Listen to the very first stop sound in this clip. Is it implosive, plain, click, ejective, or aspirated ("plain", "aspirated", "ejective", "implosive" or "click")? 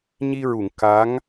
plain